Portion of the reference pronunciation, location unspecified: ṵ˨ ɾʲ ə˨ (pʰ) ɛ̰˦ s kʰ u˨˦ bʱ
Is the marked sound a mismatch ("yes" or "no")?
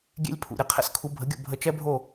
yes